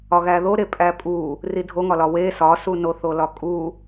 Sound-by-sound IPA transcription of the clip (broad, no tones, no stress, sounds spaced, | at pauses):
ɒ ɣ æ ð o ɾ e pʼ æ pʼ u | r i dʱ o ŋ ɒ l ɒ w e s ɒ s u n o θ o l ɒ kʼ u